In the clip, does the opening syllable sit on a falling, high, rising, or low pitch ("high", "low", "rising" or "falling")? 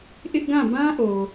high